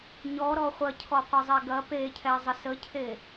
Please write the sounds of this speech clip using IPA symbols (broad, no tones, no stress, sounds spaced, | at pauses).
ɲ ɔ ɾ ɔ χʷ ɐ cʰ ɔ qʷ ɐ zˤ ɛ ɡ ɐ p e cʰ ɛ zˤ ə s ə cʰ e